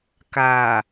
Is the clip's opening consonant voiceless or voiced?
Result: voiceless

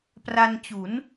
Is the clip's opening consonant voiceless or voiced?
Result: voiceless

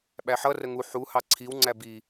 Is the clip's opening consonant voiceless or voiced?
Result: voiced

